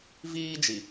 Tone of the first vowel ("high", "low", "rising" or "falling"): high